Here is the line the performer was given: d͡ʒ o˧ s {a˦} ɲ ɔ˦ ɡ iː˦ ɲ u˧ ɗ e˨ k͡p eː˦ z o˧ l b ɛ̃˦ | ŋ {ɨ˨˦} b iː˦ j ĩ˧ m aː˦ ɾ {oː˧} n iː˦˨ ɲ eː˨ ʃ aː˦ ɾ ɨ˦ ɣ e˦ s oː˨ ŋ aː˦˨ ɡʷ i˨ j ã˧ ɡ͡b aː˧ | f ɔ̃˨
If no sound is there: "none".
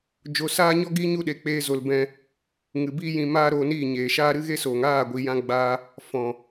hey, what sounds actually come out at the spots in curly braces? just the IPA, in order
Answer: aː˦, ɨ˨, oː˧

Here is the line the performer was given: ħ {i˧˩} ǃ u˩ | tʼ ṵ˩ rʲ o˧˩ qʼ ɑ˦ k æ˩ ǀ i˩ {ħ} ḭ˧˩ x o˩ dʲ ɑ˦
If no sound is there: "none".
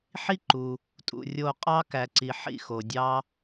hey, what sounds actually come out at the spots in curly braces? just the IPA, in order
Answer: i˦, ħ

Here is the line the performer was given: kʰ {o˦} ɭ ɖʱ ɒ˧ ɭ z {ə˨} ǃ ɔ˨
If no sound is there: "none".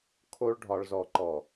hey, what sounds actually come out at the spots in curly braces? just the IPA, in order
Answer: o˦, ɔ˨

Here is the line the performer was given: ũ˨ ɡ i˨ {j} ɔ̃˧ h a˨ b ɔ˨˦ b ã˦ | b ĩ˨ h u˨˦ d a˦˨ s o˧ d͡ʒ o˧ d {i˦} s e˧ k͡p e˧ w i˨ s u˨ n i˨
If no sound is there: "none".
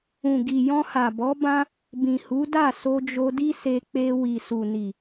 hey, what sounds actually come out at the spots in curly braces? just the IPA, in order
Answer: j, i˦

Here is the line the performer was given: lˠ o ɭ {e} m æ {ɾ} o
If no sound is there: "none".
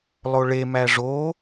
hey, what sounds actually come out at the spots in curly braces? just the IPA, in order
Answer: e, ʐ

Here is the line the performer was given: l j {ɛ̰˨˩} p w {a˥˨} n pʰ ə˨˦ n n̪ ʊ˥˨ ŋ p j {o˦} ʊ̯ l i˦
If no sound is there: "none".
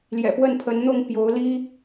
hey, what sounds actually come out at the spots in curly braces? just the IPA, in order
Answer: ɛ̰˨˩, ə˥˨, o˨˦

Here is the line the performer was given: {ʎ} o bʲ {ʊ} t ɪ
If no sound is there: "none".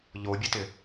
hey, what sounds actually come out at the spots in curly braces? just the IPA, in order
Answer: ʎ, ʊ

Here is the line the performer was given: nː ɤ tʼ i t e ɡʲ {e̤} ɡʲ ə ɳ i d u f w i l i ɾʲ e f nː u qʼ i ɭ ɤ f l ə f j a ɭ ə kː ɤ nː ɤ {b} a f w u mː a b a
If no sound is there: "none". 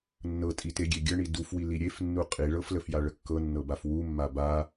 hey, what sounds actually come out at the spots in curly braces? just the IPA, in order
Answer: e, b

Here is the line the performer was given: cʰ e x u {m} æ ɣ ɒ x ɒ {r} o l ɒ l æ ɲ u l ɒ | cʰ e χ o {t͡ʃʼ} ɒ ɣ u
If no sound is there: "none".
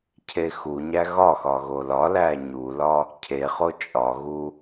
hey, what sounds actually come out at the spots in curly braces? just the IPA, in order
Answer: ɲ, ɣ, t͡ʃʼ

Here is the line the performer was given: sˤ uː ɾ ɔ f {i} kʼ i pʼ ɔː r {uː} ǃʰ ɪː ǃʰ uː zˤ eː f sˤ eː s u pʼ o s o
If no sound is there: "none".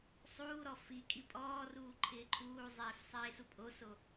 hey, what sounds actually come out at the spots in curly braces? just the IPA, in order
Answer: i, uː

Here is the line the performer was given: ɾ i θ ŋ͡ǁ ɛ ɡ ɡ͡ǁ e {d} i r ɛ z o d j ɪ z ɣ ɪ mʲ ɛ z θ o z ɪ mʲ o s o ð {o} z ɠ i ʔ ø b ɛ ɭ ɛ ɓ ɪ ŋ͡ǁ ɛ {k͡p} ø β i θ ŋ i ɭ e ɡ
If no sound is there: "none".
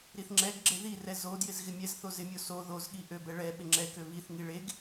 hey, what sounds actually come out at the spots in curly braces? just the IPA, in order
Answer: ð, o, k

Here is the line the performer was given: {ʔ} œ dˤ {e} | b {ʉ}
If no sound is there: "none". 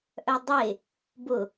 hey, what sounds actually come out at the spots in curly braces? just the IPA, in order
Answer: ʔ, e, ʊ

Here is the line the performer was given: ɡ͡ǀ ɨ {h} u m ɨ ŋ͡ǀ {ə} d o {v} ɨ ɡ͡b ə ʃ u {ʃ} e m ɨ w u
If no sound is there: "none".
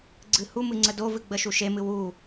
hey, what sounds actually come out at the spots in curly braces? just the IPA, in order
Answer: h, ə, v, ʃ

